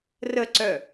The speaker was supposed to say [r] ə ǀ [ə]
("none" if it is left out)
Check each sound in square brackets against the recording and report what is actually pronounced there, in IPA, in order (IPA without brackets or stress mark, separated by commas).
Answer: r, œ